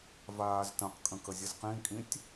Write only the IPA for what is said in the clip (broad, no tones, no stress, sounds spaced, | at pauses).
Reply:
v aː z t ə̃ q kʼ ə̃ k ə zʲ ə z q ĩ kʼ ĩ tʲ